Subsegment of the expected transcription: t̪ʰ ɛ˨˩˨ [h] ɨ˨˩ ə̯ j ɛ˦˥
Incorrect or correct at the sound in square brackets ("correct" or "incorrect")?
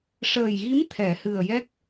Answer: correct